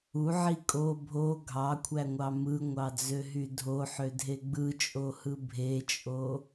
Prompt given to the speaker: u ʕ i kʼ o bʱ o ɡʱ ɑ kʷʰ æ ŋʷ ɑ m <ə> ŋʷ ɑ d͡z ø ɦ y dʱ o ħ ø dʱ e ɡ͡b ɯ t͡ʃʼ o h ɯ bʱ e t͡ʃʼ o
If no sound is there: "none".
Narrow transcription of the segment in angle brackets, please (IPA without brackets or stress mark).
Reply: ɯ